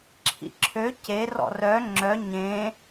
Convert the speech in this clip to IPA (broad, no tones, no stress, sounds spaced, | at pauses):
ǁʰ ḭ ǁʰ ø c e r ɔ̰ r œ ŋ͡ǁ œ ɲ ẽ